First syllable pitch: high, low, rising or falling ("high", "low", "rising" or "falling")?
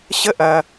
high